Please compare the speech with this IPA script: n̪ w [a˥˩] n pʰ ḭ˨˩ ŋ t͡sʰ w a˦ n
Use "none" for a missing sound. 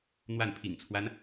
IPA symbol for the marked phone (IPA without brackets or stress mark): a˥˩